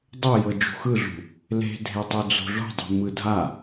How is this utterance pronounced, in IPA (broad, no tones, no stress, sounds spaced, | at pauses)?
dˤ o j ɤ d͡ʒ ṳ x ɯ ɮ ṳ | l e̤ dʱ e tˤ u d͡z o̤ ɮ o̤ dˤ ṳ m ɯ dʱ a